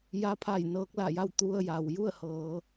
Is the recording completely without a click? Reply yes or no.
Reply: yes